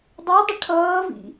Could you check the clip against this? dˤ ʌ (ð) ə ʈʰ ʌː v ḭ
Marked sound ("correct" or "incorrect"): incorrect